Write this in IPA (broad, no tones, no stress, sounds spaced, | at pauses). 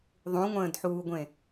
ðˤ ũ ŋʷ ə̃ː d ħ uː ɡʷ ẽ